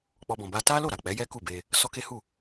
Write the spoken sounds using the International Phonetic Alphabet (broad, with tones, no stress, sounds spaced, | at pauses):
k͡p ɔ˧ b ɔ̃˨ b a˧ t a˦ l o˦˨ ɾ a˨ k͡p ɛ˨˦ j ɛ˦ k u˦˨ b e˧ | s ɔ˦ k e˦ h u˦˨